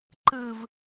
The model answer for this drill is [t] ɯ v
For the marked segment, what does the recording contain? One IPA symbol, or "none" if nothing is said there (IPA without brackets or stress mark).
ǃ